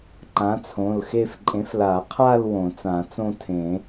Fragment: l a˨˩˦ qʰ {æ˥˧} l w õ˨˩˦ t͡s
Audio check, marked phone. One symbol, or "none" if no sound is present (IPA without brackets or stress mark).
a˥˧